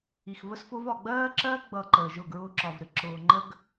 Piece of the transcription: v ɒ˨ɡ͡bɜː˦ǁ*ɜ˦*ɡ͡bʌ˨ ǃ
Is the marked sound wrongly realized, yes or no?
no